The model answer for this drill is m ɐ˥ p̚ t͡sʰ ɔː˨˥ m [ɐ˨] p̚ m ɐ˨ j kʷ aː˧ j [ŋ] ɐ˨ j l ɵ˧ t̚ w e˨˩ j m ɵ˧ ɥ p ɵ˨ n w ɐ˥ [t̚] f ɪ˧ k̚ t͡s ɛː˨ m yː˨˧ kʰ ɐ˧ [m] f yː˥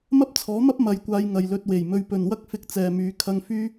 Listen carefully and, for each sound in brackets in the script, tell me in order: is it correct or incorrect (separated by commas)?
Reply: incorrect, correct, incorrect, incorrect